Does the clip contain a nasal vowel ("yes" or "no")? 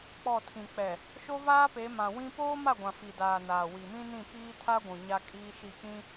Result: yes